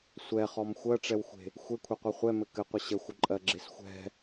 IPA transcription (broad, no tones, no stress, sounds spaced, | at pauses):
sʷ ɛ χ ɔ m xʷ ɜ ʈ͡ʂ ɛ w xʷ e̤ | xʷ e kʷʰ e qʷ ɛ χʷ ɛ m ɘ k ɘ qʷ ə ɕ ə xʷ ə ǃʼ ɜ ɡ͡ǁ e s xʷ ɛ̤